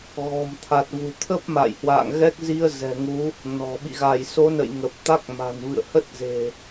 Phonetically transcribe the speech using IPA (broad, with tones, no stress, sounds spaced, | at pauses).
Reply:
ɣ ɔ̤˨˩ m t̪ʰ a˨˩ t̚ v ṳ˨˩ t̪ʰ ə˦˥ p̚ m a̰˧˨ j h w a̰ː˧˨ ŋ ɣ ɛ˦˥ k̚ z i˧ ə̯ z ɛ̤˨˩ ŋ u˨˦ | n ɔ̤˨˩ ɓ ḭ˧˨ ɣ a˧˩ j s o˨˦ n ə̰˧˨ j ŋ ə˨˩ p̚ t̪ a˦˥ k̚ m a̤˨˩ n v ɨ̰˧˨ ə̯ h ə˦˥ t̚ z e̤˨˩